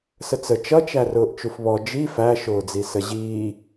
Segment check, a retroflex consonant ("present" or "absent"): absent